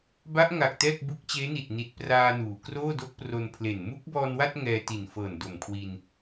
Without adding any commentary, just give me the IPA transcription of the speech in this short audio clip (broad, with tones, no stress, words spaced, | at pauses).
ba˦˥ʔŋa˨˩k̚ tɛː˥˩k̚bu˦˥k̚ t͡ɕeː˦˥ni˨˩t̚ni˨˩t̚ praː˧ nuː˩˦ kroː˥˩do˦˥k̚pro˧npʰle˨˩n mu˦˥k̚bɔː˧nwa˥˩t̚ ŋɛː˧ti˨˩nfɤː˨˩n do˨˩mkʰwi˧n